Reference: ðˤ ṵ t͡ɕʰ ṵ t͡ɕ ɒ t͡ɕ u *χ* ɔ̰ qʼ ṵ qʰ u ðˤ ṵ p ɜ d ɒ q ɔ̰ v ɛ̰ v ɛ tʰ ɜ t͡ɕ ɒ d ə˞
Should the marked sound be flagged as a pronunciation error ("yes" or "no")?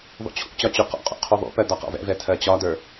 yes